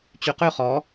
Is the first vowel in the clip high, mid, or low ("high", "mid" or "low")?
high